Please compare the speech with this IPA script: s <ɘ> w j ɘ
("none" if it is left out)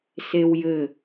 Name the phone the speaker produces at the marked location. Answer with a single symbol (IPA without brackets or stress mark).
e